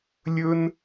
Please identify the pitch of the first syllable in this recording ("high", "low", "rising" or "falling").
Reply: high